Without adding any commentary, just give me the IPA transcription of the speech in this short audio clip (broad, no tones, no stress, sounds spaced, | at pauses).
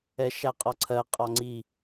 ɛ ʃ æ qʼ ɒ ǀʰ ɜ qʼ ɒ ŋ͡ǀ i